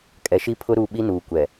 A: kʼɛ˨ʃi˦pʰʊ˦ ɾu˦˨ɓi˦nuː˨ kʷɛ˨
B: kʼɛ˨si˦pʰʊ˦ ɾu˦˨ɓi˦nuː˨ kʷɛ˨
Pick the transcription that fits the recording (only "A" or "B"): A